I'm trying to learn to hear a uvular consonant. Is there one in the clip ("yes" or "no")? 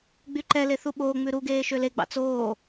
no